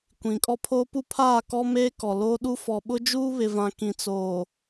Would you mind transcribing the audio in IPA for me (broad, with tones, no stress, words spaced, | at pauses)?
kʷĩ˨kʼɔ˦pʰoː˦ pu˦pʰaː˦˨kɔ˦ meː˦kɔ˨loː˦ɗu˦ fɔ˨ɓʊ˦d͡ʒuː˦ βɪ˨vã˨ kĩ˨t͡soː˨